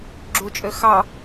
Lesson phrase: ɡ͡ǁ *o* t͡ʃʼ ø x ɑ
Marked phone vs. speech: incorrect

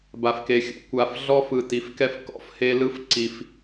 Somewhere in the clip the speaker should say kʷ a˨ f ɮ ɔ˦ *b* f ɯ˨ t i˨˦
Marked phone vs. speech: incorrect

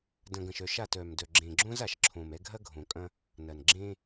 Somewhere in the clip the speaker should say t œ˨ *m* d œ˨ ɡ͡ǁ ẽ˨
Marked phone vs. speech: correct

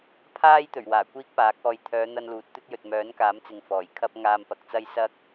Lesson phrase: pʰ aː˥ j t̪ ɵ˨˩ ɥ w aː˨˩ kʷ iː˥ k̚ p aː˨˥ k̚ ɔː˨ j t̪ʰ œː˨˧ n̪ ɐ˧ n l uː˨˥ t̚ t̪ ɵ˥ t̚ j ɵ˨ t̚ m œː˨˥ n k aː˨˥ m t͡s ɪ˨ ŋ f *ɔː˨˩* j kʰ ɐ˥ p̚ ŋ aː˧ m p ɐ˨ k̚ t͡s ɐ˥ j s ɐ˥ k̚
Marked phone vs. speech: correct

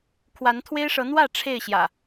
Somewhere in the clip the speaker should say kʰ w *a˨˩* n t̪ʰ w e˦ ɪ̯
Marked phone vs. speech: incorrect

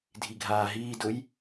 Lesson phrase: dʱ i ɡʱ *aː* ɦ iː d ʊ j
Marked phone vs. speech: correct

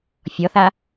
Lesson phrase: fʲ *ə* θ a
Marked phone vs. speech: incorrect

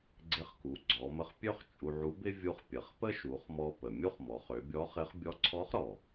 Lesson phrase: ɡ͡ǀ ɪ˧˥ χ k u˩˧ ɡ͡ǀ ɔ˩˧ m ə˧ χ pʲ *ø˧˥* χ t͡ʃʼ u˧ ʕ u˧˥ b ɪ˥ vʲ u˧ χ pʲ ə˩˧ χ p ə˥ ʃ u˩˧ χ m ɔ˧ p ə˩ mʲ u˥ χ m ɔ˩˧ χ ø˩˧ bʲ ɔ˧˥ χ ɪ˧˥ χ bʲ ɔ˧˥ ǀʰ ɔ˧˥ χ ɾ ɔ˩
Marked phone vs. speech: incorrect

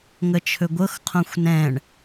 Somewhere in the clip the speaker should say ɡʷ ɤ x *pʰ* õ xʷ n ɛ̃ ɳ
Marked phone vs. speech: incorrect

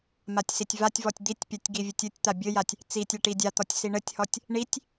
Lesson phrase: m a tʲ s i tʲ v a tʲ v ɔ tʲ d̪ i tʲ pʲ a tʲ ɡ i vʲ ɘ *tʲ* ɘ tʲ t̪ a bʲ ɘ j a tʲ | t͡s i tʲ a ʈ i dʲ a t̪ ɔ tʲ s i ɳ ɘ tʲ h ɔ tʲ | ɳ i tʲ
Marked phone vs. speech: correct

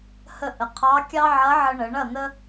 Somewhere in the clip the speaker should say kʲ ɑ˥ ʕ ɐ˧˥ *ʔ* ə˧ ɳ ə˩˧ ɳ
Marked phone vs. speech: incorrect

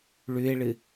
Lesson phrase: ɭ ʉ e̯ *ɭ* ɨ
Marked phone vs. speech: correct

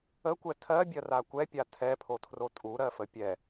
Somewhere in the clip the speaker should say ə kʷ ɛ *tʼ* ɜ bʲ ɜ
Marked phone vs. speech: incorrect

